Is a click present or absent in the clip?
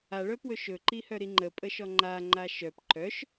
present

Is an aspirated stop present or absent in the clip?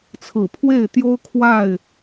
present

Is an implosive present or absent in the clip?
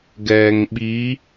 present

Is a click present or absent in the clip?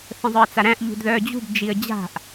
absent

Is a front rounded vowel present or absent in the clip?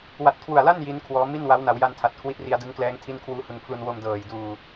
absent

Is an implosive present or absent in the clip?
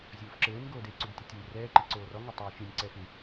absent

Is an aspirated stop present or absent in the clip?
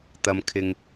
present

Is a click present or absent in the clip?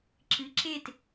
present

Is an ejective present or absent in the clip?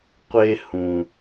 absent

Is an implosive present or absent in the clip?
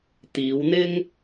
absent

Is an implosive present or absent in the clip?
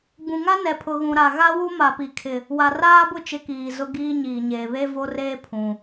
absent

